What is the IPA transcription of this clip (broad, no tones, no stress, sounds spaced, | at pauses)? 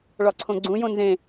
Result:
ɭ ɒ ǀʰ õ ɡ͡ǀ ũ j õ n z ẽ